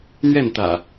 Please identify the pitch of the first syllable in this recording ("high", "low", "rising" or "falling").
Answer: falling